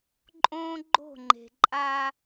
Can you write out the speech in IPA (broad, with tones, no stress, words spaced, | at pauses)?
ǃʼõː˦ɡ͡ǃo̤˦˨ŋ͡ǃe̤˨ǃʼa˦